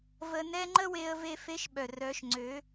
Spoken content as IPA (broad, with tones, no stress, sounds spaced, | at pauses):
v ə˧ n ɛ˦ ŋ͡ǃ ə˦ w e˧ ə̯ v e˧ f e˧ ʃ ɓ œ˨ r œ˨˦ ʃ ŋ͡ǀ ø˨˦